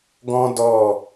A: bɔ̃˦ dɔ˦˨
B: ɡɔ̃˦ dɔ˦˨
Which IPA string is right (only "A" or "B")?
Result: B